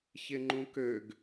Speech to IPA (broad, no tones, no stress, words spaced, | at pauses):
çɪŋ͡ǃũkøɡ